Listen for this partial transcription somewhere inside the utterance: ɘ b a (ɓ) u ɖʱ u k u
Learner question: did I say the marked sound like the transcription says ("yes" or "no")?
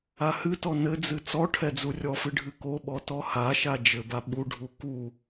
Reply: yes